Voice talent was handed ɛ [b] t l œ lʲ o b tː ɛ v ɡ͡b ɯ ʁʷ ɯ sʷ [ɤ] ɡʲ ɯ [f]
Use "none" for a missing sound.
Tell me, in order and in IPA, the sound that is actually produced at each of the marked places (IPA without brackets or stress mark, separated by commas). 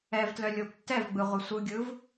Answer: v, ɯ, v